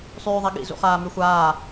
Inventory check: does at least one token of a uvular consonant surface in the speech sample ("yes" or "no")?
yes